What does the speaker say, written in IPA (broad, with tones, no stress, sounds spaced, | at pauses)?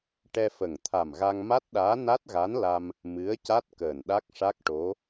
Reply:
ʈ ɛ˧ f ə˨˩ ŋ t̪ʰ a˨˩ m ɣ a˧ ŋ m a˦˥ t̚ ɗ aː˧˥ n a˦˥ t̚ ɣ a˧˥ n l a˧ m | m ɨ˧˥ ə̯ c a˦˥ t̚ k əː˨˩ n ɗ a˦˥ k̚ ʂ a˦˥ k̚ ʈ o˧˥